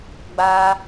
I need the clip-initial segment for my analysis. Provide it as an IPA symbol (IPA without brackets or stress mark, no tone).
ɡ͡b